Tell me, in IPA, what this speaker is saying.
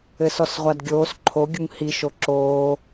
ɘ s ɔ s ʁʷ a d ɡʲ oː s ǃʰ o ɡʲ u ŋ h i ʃ o ǁ oː

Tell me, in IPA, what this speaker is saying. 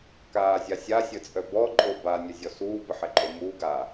k aː zʲ a sʲ a sʲ ə t͡sʼ œ b ɔ ǃʼ o b a nʲ œ zʲ ɔ s uː b ə ħ ɛ ǃʼ o m uː ɡ a

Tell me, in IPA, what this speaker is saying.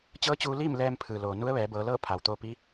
t͡ɕ ɤː˧˥ t͡ɕ uː˧ l iː˥˨ m l ɛː˧ m pʰ ɯː˩ l oː˩ n u˧˥ ə̯ ʋ ɛː˩˧ b ɤː˩˧ l ɤː˥˨ pʰ a˩ w t̪ oː˧ p i˧˥

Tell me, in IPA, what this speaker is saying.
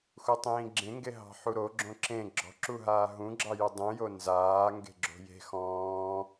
x u tˤ ĩː ɡ͡ǁ ẽ ŋ ɡ e ɦ ɑ̤ ħ u ɾ o ɡ͡ǁ õ ǁ ẽ ɡ͡ǁ ɔ̤ ǁ u ɦ aː ɦ ũ ɡ͡ǁ ɑ j u dˤ ũ j o n z aː ŋ ɡ e̤ ɡ͡ǁ o̤ j e̤ x ɔ̃ː

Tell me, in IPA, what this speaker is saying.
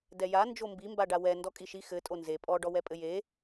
d ɛ j a n d͡ʒ o m b i m b a ɖ a w ɛ n d ɔ kʼ i ʃ i x ɘ tʼ o n z e pʼ ɔ ɖ ɔ w ɛ pʼ ɘ j e

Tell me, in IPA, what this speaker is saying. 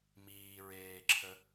m iː ɹ eː ǁʰ ə

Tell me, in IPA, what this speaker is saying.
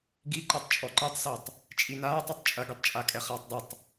ɡ i ǃ ɛ tˤ t͡ʃʼ ɔ ǃ ɨ tˤ s o tˤ | t͡ʃʼ i n aː tˤ ɘ tˤ t͡ʃʼ ɐ ɡ i tˤ t͡ʃʼ a kʼ ɛ χ aː tˤ dˤ ɨ tˤ

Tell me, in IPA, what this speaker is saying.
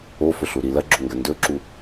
o f ɵ ɬ u ɾ i l ɐ ɡ͡ǁ o ŋ ɡ ɐ n d ɵ ǁ u

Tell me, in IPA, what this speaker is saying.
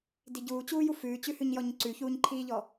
d i ɟ uː t͡ɕ uː j u f ʉː t͡ɕ ʉ h ʉ ɲ j ɔ ɲ ǀ ʉ ç uː ɲ ǃʰ iː ʎ ɔ

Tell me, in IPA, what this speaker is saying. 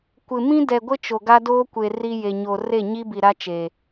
kʷ ɪ˨ m ĩ˦ d ɛ˨ ɡʷ ɪ˦ t͡ʃ o˨ ɡ a˦ d oː˦ kʷ e˨ r i˦ j e˨ ɲ o˨ r e˦˨ ɲ i˦ b i˨ ɾ a˦ t͡ʃ e˨

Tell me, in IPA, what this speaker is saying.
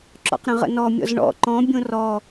ǁ ɔ̰ q ɾ ə̃ ʁ ə̰ n ɔ mʲ ɔ̰ z ɳ ɔ̰ ǃ ɔ̃ bʲ õ r ɔ

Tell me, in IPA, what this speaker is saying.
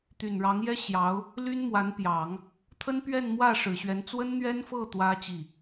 t̪ y˨˩ n ɻ ɑ˧˥ ŋ j ɛ˥ ɕ j ɑ˧˥ ʊ̯ | l y˥ n m w a˧˥ n p j ɑ˨˩˦ ŋ | t̪ʰ ə˥ n p ɥ ɛ˥˧ n m w ä˥˩ ʂ ɻ̩˨˩ ɕ ɥ ɛ˧˥ n t͡s w ə˥ n n̪ ɥ ɛ˥ n f ɤ˥˩ t̪ w ä˥ t͡ɕ i˥˩

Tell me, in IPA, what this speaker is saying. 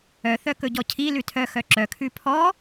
œ θ œ k ɵ ɟ ɔ cʰ i l ʉ tʰ œ x œ ǁ œ kʰ ʉ pʰ ɔ

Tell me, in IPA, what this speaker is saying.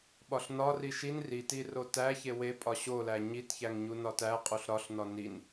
ɓ ɒ ɬ n ɒ r i ʃ i n r i t i r o t æ ç e w e pʼ ɒ ɕ o l æ ɲ i t ç æ ŋ ɲ u n ɒ t æ qʼ u ɬ ɾ ɒ ɬ n ɒ n i n

